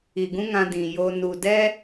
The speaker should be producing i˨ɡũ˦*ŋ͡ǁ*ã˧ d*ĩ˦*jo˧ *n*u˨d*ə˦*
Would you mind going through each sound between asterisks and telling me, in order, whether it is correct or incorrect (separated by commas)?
incorrect, incorrect, correct, incorrect